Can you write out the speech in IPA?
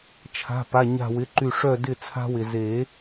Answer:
t͡ʃʰa̤˩˧˩ pa˩˧˩ɲa̤˧˩wɪ˩˧˩ǃy˧˩ ʂœ˧˩dɪ˧˩ t͡sʰa̤˧wɪ˩ ze˨˩˦

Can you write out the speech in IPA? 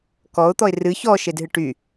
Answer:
kɔʊ̯t̪ɔɪ̯ rɨ çɔʃedɦɨ ʈy

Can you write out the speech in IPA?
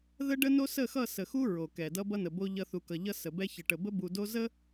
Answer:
ðə˦ɖə˦no˦ sə˦˨xʌ˦˨ sə˨xu˦ ɹo˨kɛ˨ dʌ˦bʌ˦nə˨ bo˦ʎʌ˦ θu˨kʌ˨ ʎʌ˦sə˨bɛ˦ çə˨ʈə˨bə˦bu˨ do˦ zə˦

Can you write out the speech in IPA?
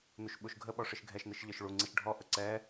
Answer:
nuʃɓuʃɡʱəɓɔ ʂɨʃɡʱɛʃnɨʃ ʎə˞ʃɭuŋ͡ǀiʃ ɖʱɔʔə ǀɛ

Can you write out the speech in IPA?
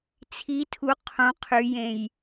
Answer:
t͡sʰi tʰu qʰũ qʰyjẽj

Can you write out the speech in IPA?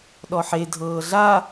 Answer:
ɗɔħe dʱɤːɮa

